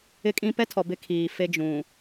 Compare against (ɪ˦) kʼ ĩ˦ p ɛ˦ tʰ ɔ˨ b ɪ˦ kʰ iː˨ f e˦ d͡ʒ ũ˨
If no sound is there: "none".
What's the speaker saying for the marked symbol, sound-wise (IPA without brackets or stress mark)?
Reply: ɪ˦